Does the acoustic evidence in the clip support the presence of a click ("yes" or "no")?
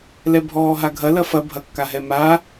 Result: no